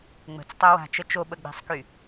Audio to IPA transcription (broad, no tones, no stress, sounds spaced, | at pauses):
ŋ͡m ə̤ t͡s tˤ œ w a̤ t͡ʃ ə t͡ʃ o ɓ ə ɡ͡b ɛ̤ sˤ k y